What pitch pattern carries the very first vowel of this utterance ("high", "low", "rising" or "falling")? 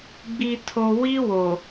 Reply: low